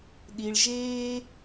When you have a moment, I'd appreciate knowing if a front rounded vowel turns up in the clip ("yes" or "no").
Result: no